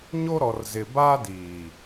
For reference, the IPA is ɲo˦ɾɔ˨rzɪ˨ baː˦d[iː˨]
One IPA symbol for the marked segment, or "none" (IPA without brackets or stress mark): iː˨